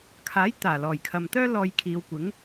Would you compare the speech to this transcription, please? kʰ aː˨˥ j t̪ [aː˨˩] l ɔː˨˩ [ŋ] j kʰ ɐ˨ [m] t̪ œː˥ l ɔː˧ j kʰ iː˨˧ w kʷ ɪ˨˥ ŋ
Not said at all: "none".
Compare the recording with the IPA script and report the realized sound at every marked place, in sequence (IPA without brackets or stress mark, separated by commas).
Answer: aː˨˩, none, m